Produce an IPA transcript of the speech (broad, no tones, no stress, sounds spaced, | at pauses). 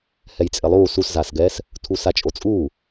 h ɛ j t͡sʼ ɪ lˠ uː s u s z aː s ɡ ɛː s | tʰ u s a t͡ʃʼ o t͡sʼ uː